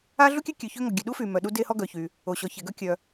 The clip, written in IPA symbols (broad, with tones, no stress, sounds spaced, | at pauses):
a˥ ɮ u˥ kʲ ø˥ kʲ ø˩ ç ø˥ ŋ ɔ˩ ɡʲ ø˩ ɗ u˥ f y˩ m œ˩ ɗ u˥ d e˥ h ɔ˥ ɡ œ˩ ç y˩ | o˩ ɕ ɔ˩ ç e˩ ɡ œ˥ kʲ œ˩